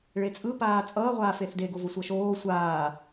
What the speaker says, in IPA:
ɭet͡sʼɯpaː t͡sʼʌːʁʷaː feθdeɡovo sʷʌʃoː sʷaː

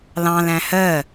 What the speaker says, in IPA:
lɑ̃læ̃ hɜ

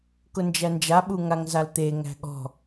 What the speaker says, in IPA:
kʊnd͡ʒænd͡ʒa ɓuŋaŋzalt̪e ŋæ̤ɠɔ̤

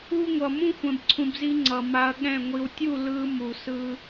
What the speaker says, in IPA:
u˦ŋʷʌ˨ mũ˦xʷɛ̃˨bǀʰũ˨bzi˧ ŋ͡ǀʌ˨ma˧ɐ̯ɠɛ̃˦˨ ŋʷi˨wtʲu˦˨ lɯ˧ mu˨sɯ˧

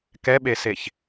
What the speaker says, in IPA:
kɛɓeseç

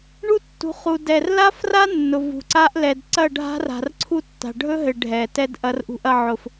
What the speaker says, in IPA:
ɳu˦tːṳ˨˦ χu˨dɛ˨rla˦fra˦ nːʊ˨ vṳ˨ǀa˦ʔ lɛ˧d ǀɐ˦˨ ɖʱa̤˦r a̤˨rǀʰu˦tːa̤˨ ɖʱɵ˦ɦɘ˨ ɖʱɛ˨ tɛ˦d ʔɐ˧rʔṳ˧ʔɐ˧ʕʊ˨f

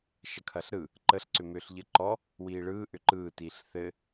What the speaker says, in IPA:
ʃɐkʰɐɬɾɯ | ǃəɬ ǀʏmʏːɬʎɘǃɔ | wiːɭɯː ʔʏǃɯː tiːɬθɘ

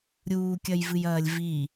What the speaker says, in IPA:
ɾʲuːkʲɐjvɨjɐːlʲ vi

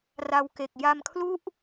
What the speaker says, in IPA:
ra˧wke˨˩k̚ ja˧mkʰlu˥˩ʔ

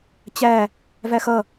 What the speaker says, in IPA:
t͡ɕæ | væxʌ

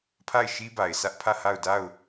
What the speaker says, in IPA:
pʰa˦˨ɪ̯ʃi˦ba˨ɪ̯sä˦ʔ pʰä˦˨ha˦˨ʊ̯ da˦˨ʊ̯

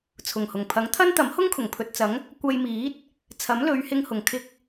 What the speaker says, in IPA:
t͡sʰʊ˨˩ŋhʊ˨˩ŋpʰɐ˨˥ŋ t̪ʰɐ˥nt̪ɐ˨˥m hʊ˥ŋkʰʊ˨˩ŋpʰɵ˨t̚t͡sɐ˨˥ŋ | kʷɐ˧jmiː˨˥t̚ | t͡sʰɐ˨˥mlɵ˨˧ɥhɪ˧ŋhʊ˨˩ŋ kʰɪ˨k̚

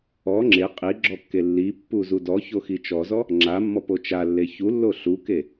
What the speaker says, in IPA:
ɔ ŋ͡ǁe qʼiɡ͡ǁɔkːe lːipːuzu dɔçoxi t͡ʃɔzɔ | ŋ͡ǁamːɔpo t͡ʃalːe çulːo ɬuke

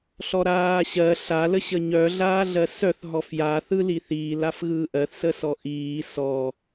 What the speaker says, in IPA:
ɬɔɾaːɕɜ ɬa ləɕəɲœ ɮaːɮɜsœθ ɦɔfja θɯliθiːl afɣɯːʔɜθ səsɔʔiː sɔ

